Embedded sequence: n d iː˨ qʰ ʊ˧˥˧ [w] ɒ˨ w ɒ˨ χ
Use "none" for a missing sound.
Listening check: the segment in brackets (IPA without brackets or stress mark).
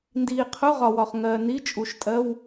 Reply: ʁ